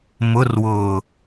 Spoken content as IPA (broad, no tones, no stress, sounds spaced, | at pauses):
m ʊ r w ʊː